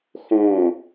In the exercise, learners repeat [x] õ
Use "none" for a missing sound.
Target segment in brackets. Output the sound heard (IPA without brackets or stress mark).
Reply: x